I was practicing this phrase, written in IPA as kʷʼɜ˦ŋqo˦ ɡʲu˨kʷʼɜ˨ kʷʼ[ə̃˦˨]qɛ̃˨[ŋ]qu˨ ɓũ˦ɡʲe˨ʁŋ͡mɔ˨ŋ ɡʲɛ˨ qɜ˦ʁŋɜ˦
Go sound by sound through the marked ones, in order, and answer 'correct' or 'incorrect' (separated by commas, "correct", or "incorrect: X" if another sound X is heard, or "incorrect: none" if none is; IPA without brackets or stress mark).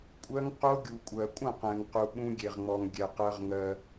correct, correct